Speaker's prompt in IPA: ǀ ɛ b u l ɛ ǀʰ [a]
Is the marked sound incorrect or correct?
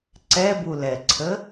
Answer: incorrect